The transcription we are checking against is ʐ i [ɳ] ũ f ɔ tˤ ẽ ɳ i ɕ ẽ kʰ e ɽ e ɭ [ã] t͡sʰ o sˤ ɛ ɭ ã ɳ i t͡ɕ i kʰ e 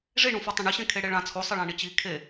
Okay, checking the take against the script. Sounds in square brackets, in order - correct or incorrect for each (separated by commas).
correct, correct